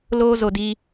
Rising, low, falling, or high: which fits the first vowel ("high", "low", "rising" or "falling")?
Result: high